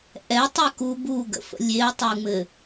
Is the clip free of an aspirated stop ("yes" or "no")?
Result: yes